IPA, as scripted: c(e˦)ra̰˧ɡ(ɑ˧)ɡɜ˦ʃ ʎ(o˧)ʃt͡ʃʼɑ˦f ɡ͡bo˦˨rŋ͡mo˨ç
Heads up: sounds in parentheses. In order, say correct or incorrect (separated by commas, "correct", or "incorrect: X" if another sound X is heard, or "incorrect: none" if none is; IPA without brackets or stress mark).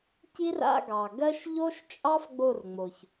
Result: incorrect: i˦, incorrect: ɑ˨, incorrect: o˦